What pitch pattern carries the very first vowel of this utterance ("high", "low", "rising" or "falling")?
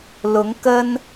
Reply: rising